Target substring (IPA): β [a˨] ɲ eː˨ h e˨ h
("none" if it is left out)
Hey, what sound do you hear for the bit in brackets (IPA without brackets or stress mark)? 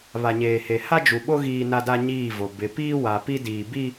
a˨